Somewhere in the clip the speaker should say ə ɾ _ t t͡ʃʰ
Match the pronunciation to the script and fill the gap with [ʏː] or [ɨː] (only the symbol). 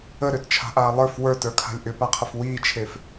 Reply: ʏː